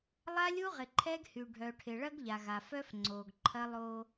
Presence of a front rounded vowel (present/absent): present